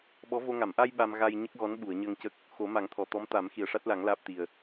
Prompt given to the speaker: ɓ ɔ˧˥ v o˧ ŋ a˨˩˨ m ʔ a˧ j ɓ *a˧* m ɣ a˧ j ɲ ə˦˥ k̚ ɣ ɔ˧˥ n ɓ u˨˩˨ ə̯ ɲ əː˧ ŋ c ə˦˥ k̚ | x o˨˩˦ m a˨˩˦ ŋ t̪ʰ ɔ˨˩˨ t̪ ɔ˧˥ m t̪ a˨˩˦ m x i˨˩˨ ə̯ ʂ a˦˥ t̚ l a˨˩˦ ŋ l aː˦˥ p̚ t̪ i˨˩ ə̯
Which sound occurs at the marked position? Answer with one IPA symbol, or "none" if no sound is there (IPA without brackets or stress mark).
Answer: a˧